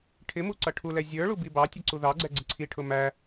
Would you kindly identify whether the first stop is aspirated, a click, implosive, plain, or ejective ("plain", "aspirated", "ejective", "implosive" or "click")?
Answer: aspirated